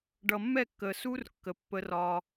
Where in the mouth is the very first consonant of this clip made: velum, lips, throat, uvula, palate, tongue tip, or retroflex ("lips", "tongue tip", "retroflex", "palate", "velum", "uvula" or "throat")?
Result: retroflex